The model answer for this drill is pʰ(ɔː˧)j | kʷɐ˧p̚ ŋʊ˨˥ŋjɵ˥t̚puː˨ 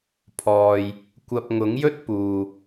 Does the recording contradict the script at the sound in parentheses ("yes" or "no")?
no